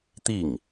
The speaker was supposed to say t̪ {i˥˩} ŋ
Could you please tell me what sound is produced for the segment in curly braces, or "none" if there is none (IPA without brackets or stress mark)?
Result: i˥˩